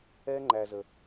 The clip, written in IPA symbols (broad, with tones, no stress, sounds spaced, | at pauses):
ɛ˦ ŋ͡ǃ æ˨ z ə˨